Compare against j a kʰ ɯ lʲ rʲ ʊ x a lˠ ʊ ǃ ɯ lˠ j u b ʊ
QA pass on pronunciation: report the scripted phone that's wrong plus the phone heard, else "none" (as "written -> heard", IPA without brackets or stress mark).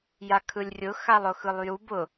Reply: ǃ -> x